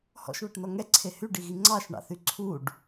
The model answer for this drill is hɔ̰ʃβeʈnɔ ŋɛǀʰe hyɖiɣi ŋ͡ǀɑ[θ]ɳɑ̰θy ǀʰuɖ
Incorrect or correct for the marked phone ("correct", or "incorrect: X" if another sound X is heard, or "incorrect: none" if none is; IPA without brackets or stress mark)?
incorrect: ʃ